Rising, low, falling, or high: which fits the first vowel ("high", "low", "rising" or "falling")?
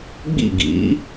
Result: falling